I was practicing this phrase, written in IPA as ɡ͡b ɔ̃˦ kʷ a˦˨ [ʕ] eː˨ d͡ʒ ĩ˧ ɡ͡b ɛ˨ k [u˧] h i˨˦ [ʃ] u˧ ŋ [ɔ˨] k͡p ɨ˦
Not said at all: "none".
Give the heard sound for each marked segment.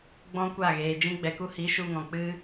ɣ, u˧, ʃ, ɔ̃˨

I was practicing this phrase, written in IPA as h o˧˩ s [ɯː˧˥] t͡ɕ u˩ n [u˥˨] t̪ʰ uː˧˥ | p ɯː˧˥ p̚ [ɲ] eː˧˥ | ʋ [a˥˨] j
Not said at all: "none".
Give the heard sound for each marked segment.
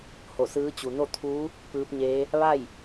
ɯː˧˥, o˥˨, ɲ, a˥˨

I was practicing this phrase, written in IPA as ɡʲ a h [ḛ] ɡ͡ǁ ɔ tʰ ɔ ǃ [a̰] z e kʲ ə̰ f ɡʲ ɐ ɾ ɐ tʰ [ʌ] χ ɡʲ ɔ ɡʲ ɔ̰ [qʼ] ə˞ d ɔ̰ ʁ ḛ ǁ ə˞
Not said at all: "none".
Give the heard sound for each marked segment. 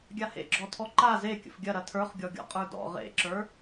ḛ, a, ə˞, qʼ

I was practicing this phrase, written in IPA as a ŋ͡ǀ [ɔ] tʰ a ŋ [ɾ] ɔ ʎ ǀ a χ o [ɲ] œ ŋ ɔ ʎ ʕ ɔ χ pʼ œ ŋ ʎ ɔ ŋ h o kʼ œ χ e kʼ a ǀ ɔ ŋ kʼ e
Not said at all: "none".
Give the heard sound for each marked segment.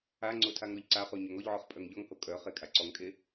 o, ɾ, ɲ

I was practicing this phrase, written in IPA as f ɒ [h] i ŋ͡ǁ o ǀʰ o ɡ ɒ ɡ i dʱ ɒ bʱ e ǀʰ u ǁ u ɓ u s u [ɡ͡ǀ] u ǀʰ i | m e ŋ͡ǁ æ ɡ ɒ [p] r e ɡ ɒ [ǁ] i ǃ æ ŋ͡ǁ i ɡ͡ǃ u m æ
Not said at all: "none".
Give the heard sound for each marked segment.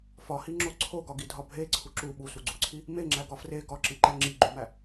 h, ɡ͡ǀ, f, ǁ

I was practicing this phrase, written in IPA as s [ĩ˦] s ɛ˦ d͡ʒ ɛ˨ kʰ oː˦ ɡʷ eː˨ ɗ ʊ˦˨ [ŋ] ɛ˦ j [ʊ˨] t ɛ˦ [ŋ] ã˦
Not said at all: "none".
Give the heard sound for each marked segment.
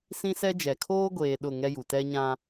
ĩ˦, ŋ, u˨, ɲ

